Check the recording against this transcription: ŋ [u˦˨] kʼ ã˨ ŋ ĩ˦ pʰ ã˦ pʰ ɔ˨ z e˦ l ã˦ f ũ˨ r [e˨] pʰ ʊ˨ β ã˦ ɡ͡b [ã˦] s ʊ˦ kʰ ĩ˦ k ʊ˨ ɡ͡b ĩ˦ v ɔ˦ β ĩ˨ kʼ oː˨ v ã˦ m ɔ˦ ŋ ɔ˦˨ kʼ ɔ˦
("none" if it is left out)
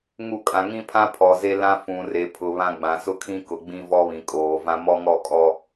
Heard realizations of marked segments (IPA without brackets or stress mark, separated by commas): u˦˨, e˨, ã˨